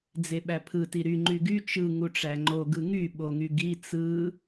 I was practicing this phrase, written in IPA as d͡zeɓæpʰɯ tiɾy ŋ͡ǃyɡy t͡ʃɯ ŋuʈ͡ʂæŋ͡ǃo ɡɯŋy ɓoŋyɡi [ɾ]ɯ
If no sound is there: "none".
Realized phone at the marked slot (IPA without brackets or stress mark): t͡s